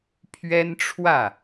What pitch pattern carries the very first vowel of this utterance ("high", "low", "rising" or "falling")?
high